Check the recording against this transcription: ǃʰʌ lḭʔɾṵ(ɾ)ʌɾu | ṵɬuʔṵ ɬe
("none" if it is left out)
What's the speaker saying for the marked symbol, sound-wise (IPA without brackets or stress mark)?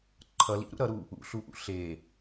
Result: ɾ